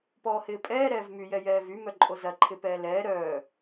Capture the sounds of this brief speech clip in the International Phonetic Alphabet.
p ɔː h ɪː pʼ ɛː ɾ ɛː v m y j ɛ j ɛː v y m œ ǃʼ o z ɐ ǃʰ ɪ p ɛː l ɛː ɾ œː

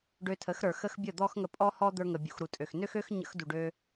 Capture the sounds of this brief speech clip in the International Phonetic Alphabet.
ɖ ø˧ tʰ ə˨˦ x ɾ ə˞˨ x ə˧ x bʲ ə˦˨ d̪ ɔ˦ x ŋ ə˧ pʼ ɔ˦ h ɔ˦ d̪ ə˞˧ ŋ ə˨ bʲ ṵ˨ x ɾ u˨ tʼ ø˨ x n ø˦ x ø˦ x ɲ ə̰˧ x d u˨ ɖ ø˧

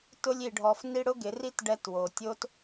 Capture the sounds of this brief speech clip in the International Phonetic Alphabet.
t ʊ˧ lʲ i˨ ɖʱ ɔ˨ f n i˧ ɽ ʊ˦ ɡ ɪ˨˦ r i˦ t ɖ ɛ˧ t w o˨ tʲ o˦ t

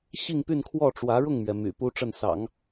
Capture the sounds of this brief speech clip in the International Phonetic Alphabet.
ɕ i˥˧ ŋ p y˥˧ n kʰ w ɔ˥˩ ʈ͡ʂ w ä˧˥ ɻ ʊ˥˩ ŋ m ɥ ɛ˩ m y̰˨˩ p u˥ ʈ͡ʂ ə˥˩ n s ɑ̰˨˩˦ ŋ

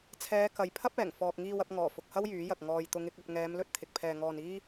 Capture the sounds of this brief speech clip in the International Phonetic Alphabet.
t͡sʰ ɛː˨˧ k ɐ˨ j pʰ ɐ˥ p̚ ɛː˨˩ ŋ f ɔː˨ k̚ ŋ iː˧ w ɐ˧ p̚ ŋ ɔː˨˩ f ʊ˨ k̚ h ɐ˥ w j yː˨˥ j ɐ˨ k̚ ŋ ɔː˨ j t̪ ʊ˨˧ ŋ ɪ˨˥ k̚ ɐ˧ p̚ ŋ ɛː˨˧ m l ɵ˥ t̚ t̪ʰ ɪ˨ k̚ pʰ ɛː˧ ŋ ɔː˧ n iː˥

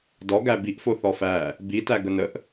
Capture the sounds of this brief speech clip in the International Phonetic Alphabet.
d ɔ ɡ æ b i ʔ f o θ ɔ f æ | b i t æ ɡ ə n ə ʔ

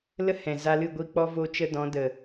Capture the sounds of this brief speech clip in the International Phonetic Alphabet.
l ə˦ h ɛ̃˨ z a˧ l ɨ˦˨ ɡʷ iː˧ k͡p ɔ˦ v o˦ t͡ʃ ə˦ d ɔ̃˨˦ d ə˨

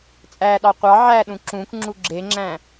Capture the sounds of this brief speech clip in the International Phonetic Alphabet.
t͡sʼ æ ɗ ɑ qʷ ɑ ʕ æ ɗ ũ ǁ ũ k ŋ͡ǁ u ɡ͡ǁ e ŋ͡ǁ æ̃

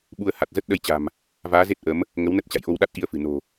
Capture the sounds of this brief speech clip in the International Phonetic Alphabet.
ɓ u˧ ə̯ h a˨˩ t̚ z ə˦˥ t̚ ɗ ə˧ j t͡ɕ a̤˨˩ m | v aː˨˦ z e˦˥ t̚ ʔ ə˨˦ m | ŋ ə˨˦ w n ə˦˥ t̚ t͡ɕ a̰˧˨ j ʔ o˧ w ɗ a˦˥ t̚ ʔ i˧ ə̯ f ɨ̤˨˩ n o̤˨˩

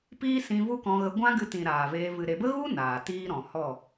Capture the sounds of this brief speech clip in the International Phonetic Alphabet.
p iː˦ s ĩ˧ v u˦ k ɔ̃˧ ɣ ə˧ ɡʷ ã˦ ɡ ɨ˧ t ĩ˨ ɾ aː˨ v eː˧ v ɨ˨ ɾ e˨ b ə˦ ɣ u˦ n aː˨ t iː˦ ɾ ɔ̃˨ h ɔ˦˨

